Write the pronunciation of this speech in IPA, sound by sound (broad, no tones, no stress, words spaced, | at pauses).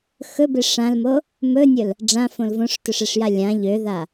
xɵbe ʂãlmo | mɵnʲɵl | ɖ͡ʐãfõl võʂtɵʂeʂja lʲã ʎøða